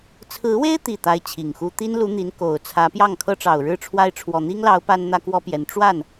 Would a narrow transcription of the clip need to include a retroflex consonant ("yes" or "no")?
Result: yes